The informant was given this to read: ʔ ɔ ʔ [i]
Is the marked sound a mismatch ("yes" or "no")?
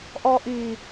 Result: no